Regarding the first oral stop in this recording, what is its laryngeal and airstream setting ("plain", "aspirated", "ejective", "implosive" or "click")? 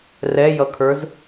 aspirated